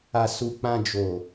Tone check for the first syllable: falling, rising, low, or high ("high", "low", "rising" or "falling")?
low